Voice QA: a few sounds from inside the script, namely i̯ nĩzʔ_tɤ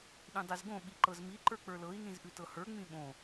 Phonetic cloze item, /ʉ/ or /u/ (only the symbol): ʉ